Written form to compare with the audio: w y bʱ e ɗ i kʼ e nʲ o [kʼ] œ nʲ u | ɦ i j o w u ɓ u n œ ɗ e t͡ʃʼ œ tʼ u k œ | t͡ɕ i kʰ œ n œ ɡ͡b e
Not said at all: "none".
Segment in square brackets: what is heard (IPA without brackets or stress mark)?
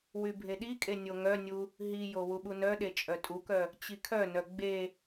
ŋ